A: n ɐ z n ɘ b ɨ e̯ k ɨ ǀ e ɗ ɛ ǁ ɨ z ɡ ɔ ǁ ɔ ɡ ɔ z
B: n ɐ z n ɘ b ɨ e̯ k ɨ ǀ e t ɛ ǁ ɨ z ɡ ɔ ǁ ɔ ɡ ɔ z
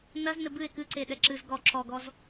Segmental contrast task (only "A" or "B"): A